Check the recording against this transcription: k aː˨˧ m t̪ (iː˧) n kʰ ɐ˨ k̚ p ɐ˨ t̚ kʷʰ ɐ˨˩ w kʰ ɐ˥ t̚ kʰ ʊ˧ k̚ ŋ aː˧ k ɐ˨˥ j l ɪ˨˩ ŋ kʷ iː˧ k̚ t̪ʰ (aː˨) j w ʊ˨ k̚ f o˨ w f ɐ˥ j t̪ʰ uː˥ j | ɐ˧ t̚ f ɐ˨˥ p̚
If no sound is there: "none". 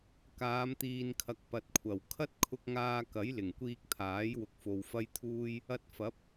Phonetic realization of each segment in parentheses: iː˨, aː˨˥

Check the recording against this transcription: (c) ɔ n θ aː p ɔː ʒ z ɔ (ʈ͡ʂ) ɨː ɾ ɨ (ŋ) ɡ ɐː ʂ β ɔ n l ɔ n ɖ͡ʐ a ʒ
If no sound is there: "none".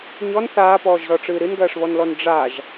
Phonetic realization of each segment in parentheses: ɲ, ʈ͡ʂ, n

